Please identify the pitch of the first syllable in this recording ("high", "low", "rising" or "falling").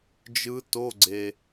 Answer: rising